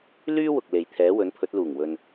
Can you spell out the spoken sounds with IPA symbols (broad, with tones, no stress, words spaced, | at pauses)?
lyː˥wʊ˨k̚le˨j t̪ʰɛː˨˥wɵ˨˥npʰɵ˨˥t̚ luː˨˩ŋwɵ˨n